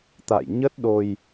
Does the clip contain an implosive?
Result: yes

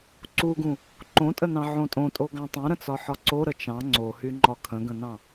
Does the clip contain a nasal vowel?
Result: yes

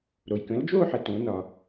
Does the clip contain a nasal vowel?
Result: yes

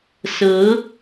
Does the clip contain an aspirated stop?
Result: no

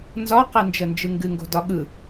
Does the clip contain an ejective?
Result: no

